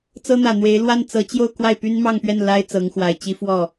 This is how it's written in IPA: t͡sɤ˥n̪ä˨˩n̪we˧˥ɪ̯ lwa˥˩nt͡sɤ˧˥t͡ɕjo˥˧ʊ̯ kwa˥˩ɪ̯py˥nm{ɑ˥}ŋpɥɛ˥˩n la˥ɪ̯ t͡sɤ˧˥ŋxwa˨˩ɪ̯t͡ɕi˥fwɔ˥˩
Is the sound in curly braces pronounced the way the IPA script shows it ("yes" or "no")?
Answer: no